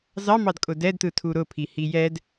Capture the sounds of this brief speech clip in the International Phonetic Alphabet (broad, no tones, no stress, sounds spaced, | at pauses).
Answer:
z ɑ m ɑ d kʼ ʊ d ɛ d t ɯ tʰ u ɾ ʊ pʰ i h i j ɛ d